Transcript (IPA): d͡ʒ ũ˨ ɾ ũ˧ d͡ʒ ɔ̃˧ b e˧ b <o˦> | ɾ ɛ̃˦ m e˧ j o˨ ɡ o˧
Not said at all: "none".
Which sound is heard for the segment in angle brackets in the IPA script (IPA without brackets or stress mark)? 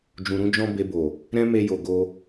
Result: o˨